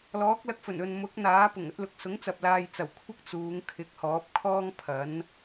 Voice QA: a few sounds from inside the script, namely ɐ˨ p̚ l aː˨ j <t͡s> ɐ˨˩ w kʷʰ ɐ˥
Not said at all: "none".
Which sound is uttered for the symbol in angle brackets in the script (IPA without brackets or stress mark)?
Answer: t͡s